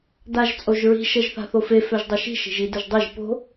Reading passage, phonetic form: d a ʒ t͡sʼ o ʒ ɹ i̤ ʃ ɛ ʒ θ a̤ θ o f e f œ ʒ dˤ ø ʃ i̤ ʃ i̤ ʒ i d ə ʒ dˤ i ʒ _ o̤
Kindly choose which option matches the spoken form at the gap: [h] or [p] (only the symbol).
p